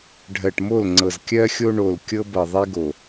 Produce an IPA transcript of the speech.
ɖʱ ɜ˨ ʈ m o˦˨ l ŋ͡ǀ ɤ˨ z kʲ ɜ˦ xʲ o˦ ɳ o˨ l kʲ ɤ˦ b ɤ˨ ðˤ e˦ ɡ o˨

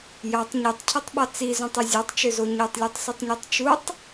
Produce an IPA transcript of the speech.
j ɑ tˤ ɲ i tˤ cʰ ɯ tˤ ɓ ɑ t͡s i z ũ tˤ ɯ zʲ ɑ tˤ t͡ʃ ø z o ɲ o tˤ lʲ u tˤ s y tˤ ɲ u tˤ t͡ʃ u tˤ

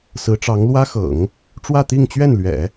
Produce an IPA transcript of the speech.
s ɹ̩˧˥ ʈ͡ʂ ɑ˧˥ ŋ l w ä˥ x ɤ̰˨˩˦ ŋ | ʈ͡ʂ w ä˥˧ t̪ i˥˧ ŋ t͡ɕ ɥ ɛ˥˩ n l ɥ ɛ̰˨˩˦

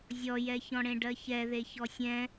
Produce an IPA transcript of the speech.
zʲ ɔ j ɛ ç ɔ̃ ɽ ẽ ɖ ɜ ç ɛ ð e ç ɔ sʲ ɛ̃

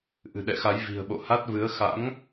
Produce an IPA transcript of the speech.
ʔ ɨ̤˨˩ ɗ ɛ̰˧˨ x a˨˦ j v i̤˨˩ ə̯ ɓ o̰˧˨ h a˦˥ t̚ v ɨ˨˦ ə̯ x a̰˧˥ ŋ

